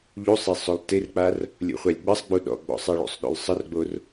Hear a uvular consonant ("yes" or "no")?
yes